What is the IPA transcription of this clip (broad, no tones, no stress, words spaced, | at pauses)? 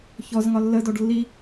çɔzŋɒ lːədɔɖ lːi